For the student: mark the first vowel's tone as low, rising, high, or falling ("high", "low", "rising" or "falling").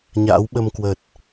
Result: rising